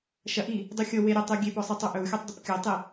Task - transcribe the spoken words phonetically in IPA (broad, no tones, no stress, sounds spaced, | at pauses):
ʃ ɐ ʔ i | dˤ u xʲ ɤ w e ɾʲ ɔ tˤ u ɡʲ e p ɔ sˤ i tˤ u ʔ ɵ w xʲ ɔ tˤ dˤ ə p kʲ ɤ tˤ i